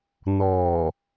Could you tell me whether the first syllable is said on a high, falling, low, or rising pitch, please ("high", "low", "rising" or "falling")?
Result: low